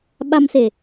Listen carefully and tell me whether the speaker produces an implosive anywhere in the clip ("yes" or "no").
yes